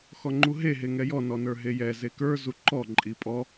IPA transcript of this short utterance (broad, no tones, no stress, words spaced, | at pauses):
xɔŋ͡ǃuɦe ɦeŋɛjɔ nɔnə˞ɦejɛ zekə˞ zuǃɔ ǃʼipʼɔ